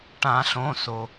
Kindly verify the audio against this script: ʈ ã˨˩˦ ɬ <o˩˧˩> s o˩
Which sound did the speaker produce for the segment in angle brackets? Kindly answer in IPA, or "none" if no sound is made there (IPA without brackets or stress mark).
õ˩˧˩